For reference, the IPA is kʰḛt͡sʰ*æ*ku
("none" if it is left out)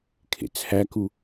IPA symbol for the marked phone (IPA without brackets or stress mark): æ